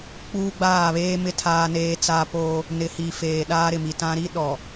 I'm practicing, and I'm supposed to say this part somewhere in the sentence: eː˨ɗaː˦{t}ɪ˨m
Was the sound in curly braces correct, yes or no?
no